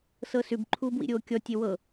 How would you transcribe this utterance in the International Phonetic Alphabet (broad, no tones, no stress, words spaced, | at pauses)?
sɤsʉb ǃʰuːbwḭɾʲoːkʲɔ tʲewɤ